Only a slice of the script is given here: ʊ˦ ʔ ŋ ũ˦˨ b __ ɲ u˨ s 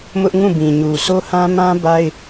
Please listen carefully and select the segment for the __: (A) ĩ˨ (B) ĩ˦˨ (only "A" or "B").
A